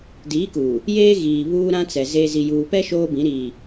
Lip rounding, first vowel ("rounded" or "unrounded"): unrounded